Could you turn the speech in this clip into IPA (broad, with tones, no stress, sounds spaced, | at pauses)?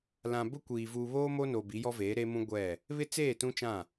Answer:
l ã˨ b ʊ˦ kʷ iː˨ v uː˨ β oː˦ m o˦ n o˨ b i˨˦ j ɔ˦ v eː˨˦ ɾ eː˦ m ũ˦ ɡʷ ɛ˦˨ | β ɪ˦ t͡s eː˦˨ t ũ˦ t͡ʃ ã˦˨